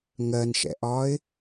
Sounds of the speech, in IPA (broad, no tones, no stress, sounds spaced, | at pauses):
ŋ ɜ n ʃ ɛ̰ ʔ ɒː ɪ̯